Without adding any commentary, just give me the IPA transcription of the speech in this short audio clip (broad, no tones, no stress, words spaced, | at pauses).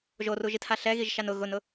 ʒoruʒitha ɬɛɣiʒʃan ʊ ɣʊnʊ